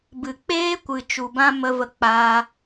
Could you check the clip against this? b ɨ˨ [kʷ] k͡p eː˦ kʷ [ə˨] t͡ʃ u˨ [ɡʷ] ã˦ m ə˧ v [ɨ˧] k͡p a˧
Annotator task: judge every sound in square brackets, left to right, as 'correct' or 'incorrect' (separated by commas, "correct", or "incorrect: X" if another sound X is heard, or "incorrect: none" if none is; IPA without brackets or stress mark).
incorrect: none, incorrect: ɨ˨, incorrect: b, incorrect: ə˧